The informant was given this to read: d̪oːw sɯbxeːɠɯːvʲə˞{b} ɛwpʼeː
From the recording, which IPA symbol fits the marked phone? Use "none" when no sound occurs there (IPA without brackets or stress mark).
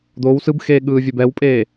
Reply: b